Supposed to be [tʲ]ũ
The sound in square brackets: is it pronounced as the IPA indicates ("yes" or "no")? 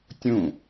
yes